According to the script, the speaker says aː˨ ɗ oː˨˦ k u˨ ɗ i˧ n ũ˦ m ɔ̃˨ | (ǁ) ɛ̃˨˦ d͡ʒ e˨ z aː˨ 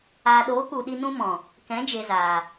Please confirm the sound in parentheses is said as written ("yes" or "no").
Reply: no